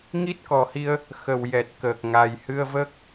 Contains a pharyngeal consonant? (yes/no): no